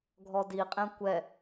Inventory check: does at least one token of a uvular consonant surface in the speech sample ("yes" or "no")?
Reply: yes